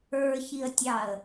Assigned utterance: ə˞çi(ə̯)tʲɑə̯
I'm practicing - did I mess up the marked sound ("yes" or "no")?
no